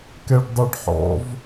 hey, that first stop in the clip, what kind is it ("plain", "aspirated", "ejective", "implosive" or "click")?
plain